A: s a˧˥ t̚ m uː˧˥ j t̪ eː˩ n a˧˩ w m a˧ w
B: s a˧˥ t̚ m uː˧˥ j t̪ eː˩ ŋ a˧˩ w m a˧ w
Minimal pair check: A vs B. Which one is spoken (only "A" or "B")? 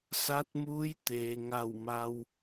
B